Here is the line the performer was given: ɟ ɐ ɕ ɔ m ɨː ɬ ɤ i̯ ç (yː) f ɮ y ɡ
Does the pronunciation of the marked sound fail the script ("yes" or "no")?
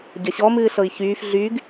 no